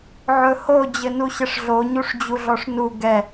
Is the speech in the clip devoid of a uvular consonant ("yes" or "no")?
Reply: yes